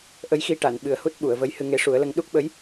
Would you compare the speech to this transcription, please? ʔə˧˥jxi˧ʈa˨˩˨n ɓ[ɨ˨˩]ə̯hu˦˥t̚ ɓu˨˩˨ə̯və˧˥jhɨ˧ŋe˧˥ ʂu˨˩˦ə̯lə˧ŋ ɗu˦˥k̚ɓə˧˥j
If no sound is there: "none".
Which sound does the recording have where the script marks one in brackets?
ɨ˨˩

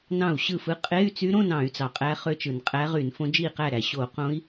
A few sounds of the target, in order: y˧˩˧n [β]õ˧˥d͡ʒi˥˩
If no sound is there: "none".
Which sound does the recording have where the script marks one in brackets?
f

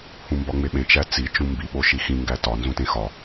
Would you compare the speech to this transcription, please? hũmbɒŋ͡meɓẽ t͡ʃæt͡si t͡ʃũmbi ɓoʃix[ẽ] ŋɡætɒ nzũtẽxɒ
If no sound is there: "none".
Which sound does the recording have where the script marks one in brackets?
ĩ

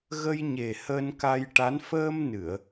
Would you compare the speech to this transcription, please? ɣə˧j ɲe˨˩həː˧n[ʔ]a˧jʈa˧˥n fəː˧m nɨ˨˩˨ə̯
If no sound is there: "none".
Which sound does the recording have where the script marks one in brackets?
k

